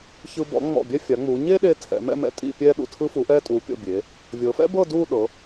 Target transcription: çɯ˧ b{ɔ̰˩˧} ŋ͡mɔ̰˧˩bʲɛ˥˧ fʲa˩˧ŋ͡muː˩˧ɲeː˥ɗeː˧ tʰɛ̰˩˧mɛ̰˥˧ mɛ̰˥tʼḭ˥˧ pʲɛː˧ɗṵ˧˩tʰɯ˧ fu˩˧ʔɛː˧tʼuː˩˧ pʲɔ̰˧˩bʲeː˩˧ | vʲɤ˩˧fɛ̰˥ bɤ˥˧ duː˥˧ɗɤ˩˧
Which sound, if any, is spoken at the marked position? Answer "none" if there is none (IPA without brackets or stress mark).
ɔ̰˩˧